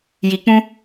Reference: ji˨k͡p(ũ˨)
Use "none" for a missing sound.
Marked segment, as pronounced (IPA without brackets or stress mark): ũ˦